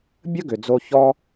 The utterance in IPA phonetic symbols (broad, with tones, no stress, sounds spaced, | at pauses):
bʲ ə˦ ɡ ʏ˨ d͡z o˧ ç ɔ˦